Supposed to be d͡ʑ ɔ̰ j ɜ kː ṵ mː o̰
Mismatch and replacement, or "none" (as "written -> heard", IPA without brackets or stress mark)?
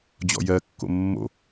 ṵ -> o̰